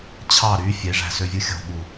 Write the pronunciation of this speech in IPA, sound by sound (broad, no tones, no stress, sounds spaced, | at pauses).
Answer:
t͡ɕʰ ɑ ɾ y fʲ e ʐ æ̤ s ø vʲ ɯ xʲ o̤ ɠ u